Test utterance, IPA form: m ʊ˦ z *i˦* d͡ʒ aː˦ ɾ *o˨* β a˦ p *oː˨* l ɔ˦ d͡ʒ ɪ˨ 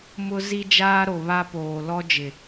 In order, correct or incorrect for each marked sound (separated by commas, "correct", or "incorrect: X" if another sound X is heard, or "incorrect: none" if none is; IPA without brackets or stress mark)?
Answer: correct, correct, correct